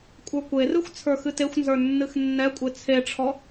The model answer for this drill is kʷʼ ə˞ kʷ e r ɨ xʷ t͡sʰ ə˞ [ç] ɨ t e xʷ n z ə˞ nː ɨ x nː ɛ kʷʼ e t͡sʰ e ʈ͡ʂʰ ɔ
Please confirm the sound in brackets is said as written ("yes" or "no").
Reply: no